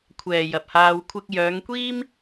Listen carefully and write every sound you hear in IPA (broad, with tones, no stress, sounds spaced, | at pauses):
kʷʰ ɛː˨ j ɐ˨ p̚ h aː˧ w kʷʰ ɪ˧ k̚ j œː˨˧ ŋ kʷ iː˥ m